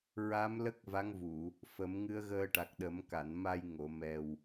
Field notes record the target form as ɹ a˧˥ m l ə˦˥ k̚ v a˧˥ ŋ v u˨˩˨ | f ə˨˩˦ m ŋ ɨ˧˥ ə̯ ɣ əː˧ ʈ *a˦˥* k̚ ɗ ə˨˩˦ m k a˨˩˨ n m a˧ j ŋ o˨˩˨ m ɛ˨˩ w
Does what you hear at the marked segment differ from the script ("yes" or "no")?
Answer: yes